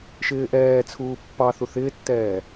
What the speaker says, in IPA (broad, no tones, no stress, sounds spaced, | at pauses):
ʃ ɪː ʔ ɛː t͡sʰ uː pː ɑ θ u θ ɪː tː ɛː